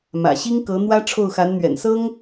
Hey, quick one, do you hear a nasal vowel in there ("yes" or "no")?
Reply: no